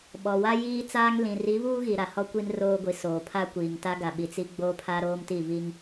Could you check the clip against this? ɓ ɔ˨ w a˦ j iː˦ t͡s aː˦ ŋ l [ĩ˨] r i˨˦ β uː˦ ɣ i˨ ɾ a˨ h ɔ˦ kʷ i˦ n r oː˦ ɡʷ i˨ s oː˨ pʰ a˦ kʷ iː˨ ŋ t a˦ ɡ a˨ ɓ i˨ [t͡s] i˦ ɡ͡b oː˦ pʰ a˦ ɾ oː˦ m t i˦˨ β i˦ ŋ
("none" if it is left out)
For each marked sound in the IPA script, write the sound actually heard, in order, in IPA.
ĩ˨, t͡s

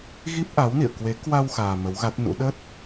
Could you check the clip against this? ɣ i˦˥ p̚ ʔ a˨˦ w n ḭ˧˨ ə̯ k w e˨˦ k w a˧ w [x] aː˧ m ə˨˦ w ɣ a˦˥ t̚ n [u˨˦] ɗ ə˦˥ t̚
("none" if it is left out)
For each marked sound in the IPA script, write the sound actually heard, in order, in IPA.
x, ṵ˧˥

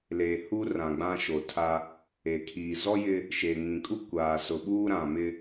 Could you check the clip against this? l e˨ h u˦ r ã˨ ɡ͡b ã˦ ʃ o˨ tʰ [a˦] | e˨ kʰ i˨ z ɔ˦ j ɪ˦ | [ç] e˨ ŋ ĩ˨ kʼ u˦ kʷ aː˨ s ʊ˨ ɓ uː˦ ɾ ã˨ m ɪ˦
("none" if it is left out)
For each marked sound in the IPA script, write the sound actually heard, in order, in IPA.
a˦, ʃ

